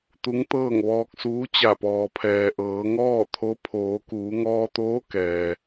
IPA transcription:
t̪ u˧˥ ŋ t̪ ɤː˥˨ ŋ ʋ ɔː˧ k̚ s uː˧˥ t͡ɕ a˧˩ p ɔː˩ pʰ ɛː˩ ʔ ɤː˩˧ ŋ ɔː˥˨ t̪ʰ o˧˥ pʰ oː˩˧ k uː˩˧ ŋ ɔː˧ t̪ oː˧˥ k ɛː˩

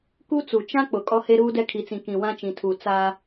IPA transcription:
k u˦ t͡s u˨ t͡ʃ ã˦ k͡p ʊ˨ kʼ ɔ˦ h e˦ ɾ uː˦ d ɛ˦ kʰ i˨ t͡s ĩ˨ k ĩ˨ w ã˦ t͡ʃ ĩ˨ tʰ u˨ t͡s aː˦

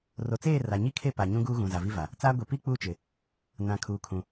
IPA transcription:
r o˨ t͡s eː˦˨ r a˨ ɲ i˦ kʰ e˦˨ p a˨ ɲ ũ˦ ɡ uː˦ ɣ ũ˨ z a˨ v i˦ v a˨ | t͡s aː˦ ɡʷ e˨ p i˦ k͡p uː˦ t͡ʃ ɪ˨ | n ã˨ kʰ uː˨ kʰ ũ˨

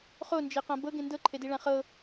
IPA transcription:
χ o n d͡ʒ e q ã b ɤ ɡ ẽ n d ɤ ǃʰ e d i ɭ ã χ ɤ

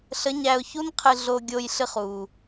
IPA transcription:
ɬ ə˧˥ ɲ æ˧ ʊ̯ ç u˥ n qʰ ɨ˧ ɮ o˧ ɡʲ o˧ j ɬ ɨ˧ χ u˩

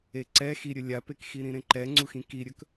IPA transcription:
e ǀ ɛ x i ɾʲ ɵ lʲ a p e k x i ɾ ĩ ɾ ẽ ǃ ɛ ŋ͡ǀ u x ĩ k i ɾʲ ɵ k

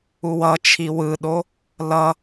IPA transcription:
u w ʌ t͡ʃʰ i w ɯ ɗ o | l ʌ

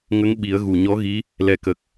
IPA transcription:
ŋ ə˧˥ ŋ ɓ i˨˩˦ ə̯ ɣ u˨˩ ɲ ɔ˧˥ ɣ i˧˥ | l ɛ˨˩ k ə˨˩ k̚

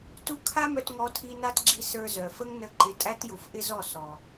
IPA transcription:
t u˦ kʰ a˦ m œ˧ t ŋ ɔ˧ tʰ i˧ n a˦ t ɡ͡ǁ i˧ s ə˞˧ z œ˨ f ə˦ ŋ n ə˧ ǃ ɪ˨˦ tʼ æ˦ t j u˨ f ʔ ɪ˦ z ɔ˦˨ s ɔ˨

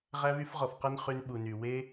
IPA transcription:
ʁ æ˧ β y˧ f ʁ ɔ˨ f q ɛ˧ n χ y˧ n ɓ u˨ n y˨ w e˦

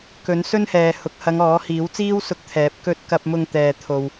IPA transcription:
k ɵ˨˥ n s ɵ˥ n h ɛː˨ h ʊ˨˥ k̚ h ɐ˨˧ ŋ ɔː˨˥ h iː˨˥ w t͡s iː˥ w s ʊ˧ k̚ t̪ʰ ɛː˨˥ p̚ k ɵ˧ t̚ k ɐ˧ p̚ m ʊ˧ ŋ t̪ ɛː˨ t̪ʰ o˧ w

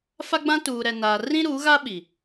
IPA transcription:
f a˦ ɡ͡b ã˦ t uː˨ ɾ ɛ˨ n aː˨ r ĩ˦ ɾ u˨˦ ɣ a˦ ɓ i˨

